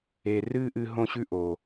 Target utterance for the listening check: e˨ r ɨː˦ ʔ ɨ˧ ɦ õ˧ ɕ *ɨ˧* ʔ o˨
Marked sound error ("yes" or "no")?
yes